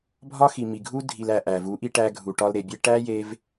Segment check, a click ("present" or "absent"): absent